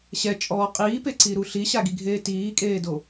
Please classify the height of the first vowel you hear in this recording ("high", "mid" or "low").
mid